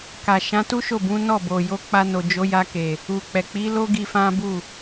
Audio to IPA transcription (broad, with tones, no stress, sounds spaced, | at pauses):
k a˨ ʃ ã˨˦ t u˦ ʃ o˦˨ b ũ˨˦ n ɔ˦˨ b o˨ j o˨˦ k͡p a˧ n o˨ d͡ʒ o˨˦ j a˧ k e˨ | u˨ k͡p ɛ˨ k͡p i˨˦ l o˦ ɡ i˧ f ã˦ b u˦˨